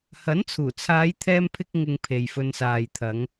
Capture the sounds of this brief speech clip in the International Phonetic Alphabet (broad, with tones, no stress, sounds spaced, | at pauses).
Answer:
h ɐ˨˥ n t͡sʰ uː˨˩ t͡sʰ aː˨˧ j t̪ʰ ɛː˥ m pʰ ɪ˥ k̚ ŋ ɪ˧ ŋ pʰ e˨ j f ɵ˧ n s aː˨ j t̪ʰ ɐ˨˧ ŋ